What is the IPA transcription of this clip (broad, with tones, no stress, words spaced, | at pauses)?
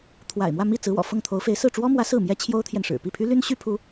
t̪ʰwa̰˨˩ɪ̯mwä˥˧ mi˥˩ t͡sɹ̩˧˥wɔ̰˨˩fɤ˥˩ŋ t̪ʰo˧˥ʊ̯fe˧˥ɪ̯ sɹ̩˥˩ʈ͡ʂwɔ˥mwä˧˥ sɹ̩˥˩mjɛ˥ t͡ɕʰjo˥ʊ̯t̪ʰjɛ˨nʂɻ̩˨˩ pi˥˩pʰy˥ly˥n ɕy˥pʰu˧˥